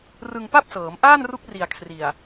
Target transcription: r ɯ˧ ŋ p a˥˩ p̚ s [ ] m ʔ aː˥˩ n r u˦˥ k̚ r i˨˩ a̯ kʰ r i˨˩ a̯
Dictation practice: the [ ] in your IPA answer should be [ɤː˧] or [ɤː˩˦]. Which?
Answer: ɤː˩˦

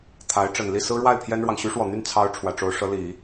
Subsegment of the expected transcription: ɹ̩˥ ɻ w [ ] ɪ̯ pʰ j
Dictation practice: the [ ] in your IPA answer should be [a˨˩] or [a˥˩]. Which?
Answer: a˥˩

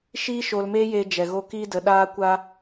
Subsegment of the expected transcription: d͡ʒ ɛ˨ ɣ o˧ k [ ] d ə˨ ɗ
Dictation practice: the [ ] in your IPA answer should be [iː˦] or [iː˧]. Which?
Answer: iː˧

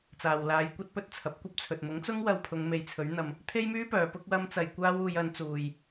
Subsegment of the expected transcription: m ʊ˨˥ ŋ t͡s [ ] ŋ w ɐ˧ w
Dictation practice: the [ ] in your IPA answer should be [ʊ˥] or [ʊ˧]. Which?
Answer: ʊ˥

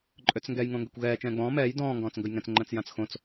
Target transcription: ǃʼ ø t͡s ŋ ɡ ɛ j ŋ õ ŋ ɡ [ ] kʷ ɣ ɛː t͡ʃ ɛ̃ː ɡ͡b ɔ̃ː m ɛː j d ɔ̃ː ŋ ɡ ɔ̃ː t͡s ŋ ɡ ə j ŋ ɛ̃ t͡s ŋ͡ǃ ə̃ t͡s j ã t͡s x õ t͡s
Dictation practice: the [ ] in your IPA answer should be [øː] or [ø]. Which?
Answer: ø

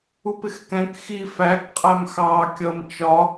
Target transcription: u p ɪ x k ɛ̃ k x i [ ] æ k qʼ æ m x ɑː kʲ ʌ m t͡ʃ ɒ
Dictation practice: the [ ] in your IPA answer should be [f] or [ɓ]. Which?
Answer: f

